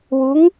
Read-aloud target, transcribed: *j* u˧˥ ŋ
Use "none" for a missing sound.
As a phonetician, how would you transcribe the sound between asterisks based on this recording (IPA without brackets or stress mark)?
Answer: w